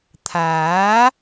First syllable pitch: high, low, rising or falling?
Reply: rising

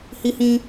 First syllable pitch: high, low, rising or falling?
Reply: high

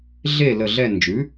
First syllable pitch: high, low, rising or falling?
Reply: falling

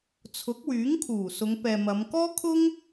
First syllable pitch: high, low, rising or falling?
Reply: rising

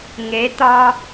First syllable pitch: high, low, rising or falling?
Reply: rising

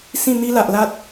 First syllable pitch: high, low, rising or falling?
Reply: falling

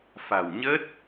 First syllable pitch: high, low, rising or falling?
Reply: low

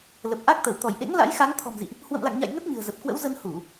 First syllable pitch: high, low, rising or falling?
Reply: low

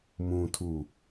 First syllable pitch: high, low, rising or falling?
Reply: low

